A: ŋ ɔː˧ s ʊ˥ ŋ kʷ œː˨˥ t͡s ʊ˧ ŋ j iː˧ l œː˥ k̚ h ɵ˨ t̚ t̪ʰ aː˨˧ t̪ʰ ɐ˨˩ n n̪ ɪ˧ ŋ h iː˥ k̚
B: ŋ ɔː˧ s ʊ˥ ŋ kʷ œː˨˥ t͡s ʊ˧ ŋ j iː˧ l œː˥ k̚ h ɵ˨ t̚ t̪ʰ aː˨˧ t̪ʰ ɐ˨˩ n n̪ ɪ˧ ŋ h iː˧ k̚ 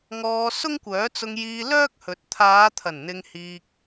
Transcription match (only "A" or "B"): B